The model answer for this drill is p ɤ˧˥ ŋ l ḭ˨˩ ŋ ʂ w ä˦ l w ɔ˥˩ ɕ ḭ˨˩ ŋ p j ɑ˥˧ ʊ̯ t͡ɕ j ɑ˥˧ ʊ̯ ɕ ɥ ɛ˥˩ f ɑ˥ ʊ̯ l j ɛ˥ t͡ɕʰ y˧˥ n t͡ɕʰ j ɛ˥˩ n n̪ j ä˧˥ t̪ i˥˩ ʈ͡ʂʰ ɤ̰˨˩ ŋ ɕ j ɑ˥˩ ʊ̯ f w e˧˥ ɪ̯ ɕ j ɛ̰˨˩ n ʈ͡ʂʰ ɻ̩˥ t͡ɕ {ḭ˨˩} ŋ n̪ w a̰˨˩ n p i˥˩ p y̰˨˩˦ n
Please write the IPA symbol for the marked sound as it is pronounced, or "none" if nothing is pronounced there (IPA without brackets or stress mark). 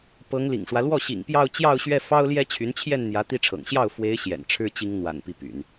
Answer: i˥